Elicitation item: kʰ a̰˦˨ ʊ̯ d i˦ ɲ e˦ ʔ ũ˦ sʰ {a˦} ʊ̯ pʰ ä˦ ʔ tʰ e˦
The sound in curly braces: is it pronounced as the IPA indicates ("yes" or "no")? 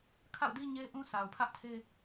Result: no